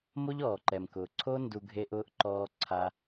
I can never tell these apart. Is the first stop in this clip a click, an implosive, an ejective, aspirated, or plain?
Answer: click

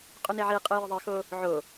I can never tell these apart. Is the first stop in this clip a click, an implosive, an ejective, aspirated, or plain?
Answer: ejective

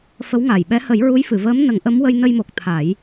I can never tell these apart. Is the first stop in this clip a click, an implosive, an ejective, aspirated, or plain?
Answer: implosive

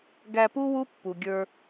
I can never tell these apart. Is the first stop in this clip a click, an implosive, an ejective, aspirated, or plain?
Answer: plain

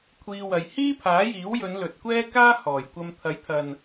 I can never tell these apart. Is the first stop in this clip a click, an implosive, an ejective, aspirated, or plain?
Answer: aspirated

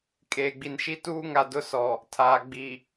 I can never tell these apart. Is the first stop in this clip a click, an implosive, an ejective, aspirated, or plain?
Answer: ejective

